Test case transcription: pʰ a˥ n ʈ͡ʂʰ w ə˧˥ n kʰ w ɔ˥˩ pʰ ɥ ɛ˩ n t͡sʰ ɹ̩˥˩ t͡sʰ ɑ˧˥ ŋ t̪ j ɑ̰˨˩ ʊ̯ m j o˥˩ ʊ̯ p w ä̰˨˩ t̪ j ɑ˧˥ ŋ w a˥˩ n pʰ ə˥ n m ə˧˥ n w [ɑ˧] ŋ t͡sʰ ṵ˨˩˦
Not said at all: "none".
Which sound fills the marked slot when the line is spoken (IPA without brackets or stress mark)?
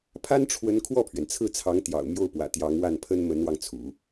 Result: ɑ˧